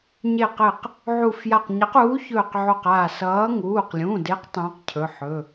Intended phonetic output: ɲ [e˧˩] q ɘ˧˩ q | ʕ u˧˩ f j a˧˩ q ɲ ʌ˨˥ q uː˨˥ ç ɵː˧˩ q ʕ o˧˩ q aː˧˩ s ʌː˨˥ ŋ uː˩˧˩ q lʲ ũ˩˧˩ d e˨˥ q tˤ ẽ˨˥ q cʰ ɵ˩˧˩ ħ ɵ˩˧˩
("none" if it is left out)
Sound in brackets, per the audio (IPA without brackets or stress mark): e˧˩